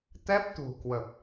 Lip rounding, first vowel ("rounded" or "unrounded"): unrounded